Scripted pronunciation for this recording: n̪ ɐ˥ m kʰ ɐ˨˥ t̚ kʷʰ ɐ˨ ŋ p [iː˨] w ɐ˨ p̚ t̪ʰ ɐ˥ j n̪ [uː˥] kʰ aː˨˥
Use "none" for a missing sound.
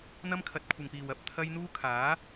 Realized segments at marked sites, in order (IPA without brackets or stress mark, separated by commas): iː˨, uː˥